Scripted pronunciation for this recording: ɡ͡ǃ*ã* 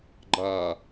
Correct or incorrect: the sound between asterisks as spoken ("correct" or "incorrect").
incorrect